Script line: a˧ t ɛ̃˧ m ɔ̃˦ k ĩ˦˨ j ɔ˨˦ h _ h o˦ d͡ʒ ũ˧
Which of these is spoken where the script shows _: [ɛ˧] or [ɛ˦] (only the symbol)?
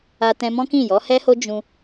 ɛ˦